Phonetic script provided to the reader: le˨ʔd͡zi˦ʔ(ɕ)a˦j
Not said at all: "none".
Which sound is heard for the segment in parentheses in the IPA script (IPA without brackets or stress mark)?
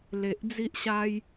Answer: ɕ